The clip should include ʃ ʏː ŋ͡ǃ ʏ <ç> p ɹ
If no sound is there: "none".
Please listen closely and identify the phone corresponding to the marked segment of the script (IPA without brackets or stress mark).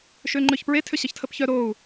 ç